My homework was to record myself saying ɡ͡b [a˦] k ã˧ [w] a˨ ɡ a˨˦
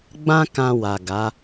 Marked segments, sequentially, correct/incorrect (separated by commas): incorrect, correct